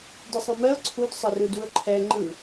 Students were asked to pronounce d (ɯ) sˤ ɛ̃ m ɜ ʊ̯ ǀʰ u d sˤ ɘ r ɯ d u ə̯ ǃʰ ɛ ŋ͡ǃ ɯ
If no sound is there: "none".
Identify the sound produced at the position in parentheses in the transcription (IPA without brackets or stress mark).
ɯ